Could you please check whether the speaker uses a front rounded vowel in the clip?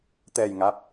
no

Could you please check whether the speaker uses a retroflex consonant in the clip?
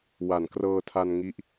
no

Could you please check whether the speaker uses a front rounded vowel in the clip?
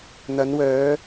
yes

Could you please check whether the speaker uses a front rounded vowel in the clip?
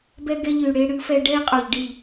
yes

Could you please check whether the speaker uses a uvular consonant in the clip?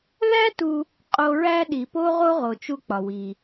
yes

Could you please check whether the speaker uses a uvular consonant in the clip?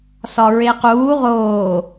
yes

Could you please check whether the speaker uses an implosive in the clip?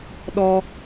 yes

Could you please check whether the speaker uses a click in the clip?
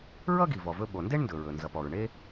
no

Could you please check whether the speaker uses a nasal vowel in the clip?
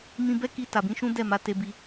yes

